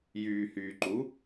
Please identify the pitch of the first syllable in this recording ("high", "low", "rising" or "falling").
low